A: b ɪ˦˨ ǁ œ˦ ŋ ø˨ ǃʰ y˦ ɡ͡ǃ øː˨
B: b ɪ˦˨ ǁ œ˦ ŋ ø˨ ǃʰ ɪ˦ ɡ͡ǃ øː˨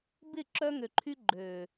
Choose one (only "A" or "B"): A